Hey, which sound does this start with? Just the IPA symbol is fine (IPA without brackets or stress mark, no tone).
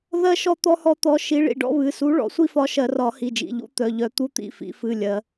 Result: ð